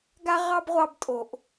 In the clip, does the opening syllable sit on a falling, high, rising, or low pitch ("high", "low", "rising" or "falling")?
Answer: high